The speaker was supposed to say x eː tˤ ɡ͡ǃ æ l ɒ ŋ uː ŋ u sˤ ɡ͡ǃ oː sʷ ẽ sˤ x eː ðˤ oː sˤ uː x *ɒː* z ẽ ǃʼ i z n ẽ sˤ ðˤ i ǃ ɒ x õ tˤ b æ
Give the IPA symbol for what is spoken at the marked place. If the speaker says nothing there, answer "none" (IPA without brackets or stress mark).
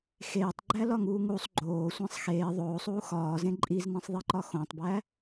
ɒː